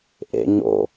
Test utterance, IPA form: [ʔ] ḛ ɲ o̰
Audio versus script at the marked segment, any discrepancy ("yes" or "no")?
no